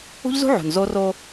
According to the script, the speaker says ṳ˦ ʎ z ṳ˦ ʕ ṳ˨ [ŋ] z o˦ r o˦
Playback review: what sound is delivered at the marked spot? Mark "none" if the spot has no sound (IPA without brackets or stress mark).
n